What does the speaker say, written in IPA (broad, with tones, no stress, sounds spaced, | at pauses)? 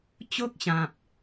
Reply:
t͡ɕ o˦ k̚ ɕ ã˨ p̚